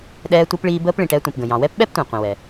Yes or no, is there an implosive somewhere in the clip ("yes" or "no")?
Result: yes